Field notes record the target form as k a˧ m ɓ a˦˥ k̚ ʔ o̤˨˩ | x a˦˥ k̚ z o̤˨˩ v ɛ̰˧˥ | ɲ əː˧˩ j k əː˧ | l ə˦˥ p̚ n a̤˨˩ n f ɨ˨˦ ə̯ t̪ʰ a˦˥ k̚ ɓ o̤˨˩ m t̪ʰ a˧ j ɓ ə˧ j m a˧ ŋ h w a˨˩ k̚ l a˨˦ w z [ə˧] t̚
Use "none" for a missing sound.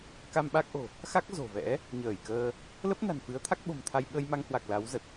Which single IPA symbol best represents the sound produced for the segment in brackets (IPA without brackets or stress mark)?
ə˨˩